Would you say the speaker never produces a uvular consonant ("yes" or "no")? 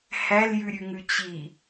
yes